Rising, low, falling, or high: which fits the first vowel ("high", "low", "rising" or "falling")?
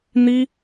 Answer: high